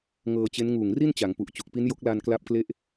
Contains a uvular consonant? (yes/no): no